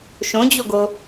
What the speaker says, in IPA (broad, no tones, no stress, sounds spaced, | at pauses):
ʃ õ d͡ʑ o ɡ o